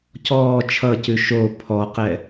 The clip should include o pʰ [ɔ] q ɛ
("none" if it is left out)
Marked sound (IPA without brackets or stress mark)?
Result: ɔ